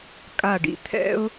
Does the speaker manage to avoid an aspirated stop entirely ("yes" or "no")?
no